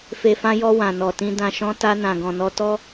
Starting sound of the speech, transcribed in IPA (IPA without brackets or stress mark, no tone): f